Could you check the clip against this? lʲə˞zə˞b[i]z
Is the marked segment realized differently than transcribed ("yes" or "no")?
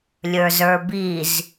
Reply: no